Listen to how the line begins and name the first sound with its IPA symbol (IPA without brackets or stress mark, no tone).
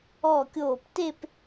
ɔ